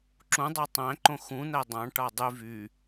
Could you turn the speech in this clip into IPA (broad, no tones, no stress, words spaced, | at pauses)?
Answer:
ǁũdˤɑ tˤæ̃ǃõ xũn̪æ dˤɑ̃ʈɑ dˤy vy